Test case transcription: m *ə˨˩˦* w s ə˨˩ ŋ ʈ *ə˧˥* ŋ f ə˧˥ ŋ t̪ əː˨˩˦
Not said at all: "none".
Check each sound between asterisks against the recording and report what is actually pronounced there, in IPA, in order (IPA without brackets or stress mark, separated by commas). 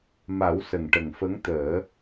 a˨˩˦, ə˨˩